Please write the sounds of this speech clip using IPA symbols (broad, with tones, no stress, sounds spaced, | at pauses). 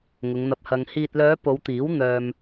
ŋ ʊ˨˧ ŋ n̪ ɐ˧ p̚ h ɐ˧ ŋ h iː˨ t̚ l œː˨˧ p o˨˧ w t̪ iː˨˥ w n̪ œː˧ m